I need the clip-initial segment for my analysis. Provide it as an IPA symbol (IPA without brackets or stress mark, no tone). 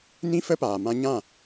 n